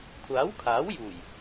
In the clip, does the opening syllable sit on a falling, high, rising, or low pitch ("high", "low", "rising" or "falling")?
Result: rising